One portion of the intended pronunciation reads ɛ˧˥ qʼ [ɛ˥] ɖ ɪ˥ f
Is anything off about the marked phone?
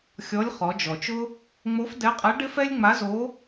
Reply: yes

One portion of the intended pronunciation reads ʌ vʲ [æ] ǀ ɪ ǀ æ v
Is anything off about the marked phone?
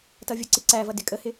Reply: yes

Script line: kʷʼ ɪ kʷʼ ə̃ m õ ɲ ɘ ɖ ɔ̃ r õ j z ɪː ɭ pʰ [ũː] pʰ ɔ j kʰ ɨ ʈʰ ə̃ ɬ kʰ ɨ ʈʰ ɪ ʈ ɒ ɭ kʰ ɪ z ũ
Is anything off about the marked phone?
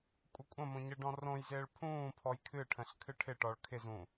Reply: no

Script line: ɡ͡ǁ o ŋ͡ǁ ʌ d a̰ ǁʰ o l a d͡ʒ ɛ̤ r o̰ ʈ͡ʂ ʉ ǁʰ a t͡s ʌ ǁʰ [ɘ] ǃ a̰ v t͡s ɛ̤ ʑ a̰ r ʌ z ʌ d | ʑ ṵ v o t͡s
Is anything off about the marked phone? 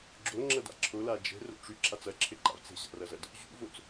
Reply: no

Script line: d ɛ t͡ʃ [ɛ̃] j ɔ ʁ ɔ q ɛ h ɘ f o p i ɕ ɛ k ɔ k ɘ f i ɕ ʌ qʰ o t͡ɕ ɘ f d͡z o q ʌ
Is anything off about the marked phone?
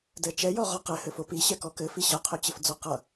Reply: yes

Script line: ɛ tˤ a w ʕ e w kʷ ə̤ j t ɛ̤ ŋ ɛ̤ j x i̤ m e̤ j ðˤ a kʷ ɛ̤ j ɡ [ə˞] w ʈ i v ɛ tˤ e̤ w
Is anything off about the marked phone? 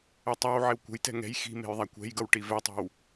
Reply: yes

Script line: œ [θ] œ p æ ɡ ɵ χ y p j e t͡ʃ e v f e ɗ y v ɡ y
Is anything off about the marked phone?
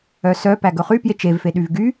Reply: yes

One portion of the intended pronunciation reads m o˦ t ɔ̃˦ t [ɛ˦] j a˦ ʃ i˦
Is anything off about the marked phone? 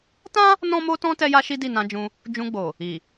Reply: no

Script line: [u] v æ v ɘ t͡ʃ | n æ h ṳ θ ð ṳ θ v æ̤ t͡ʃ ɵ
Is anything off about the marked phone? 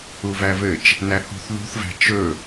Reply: no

